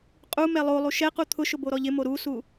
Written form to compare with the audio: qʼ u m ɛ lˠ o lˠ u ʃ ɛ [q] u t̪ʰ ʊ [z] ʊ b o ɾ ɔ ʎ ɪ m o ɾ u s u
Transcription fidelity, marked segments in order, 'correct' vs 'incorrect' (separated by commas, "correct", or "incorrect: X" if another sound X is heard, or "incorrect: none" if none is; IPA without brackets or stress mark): correct, incorrect: ʃ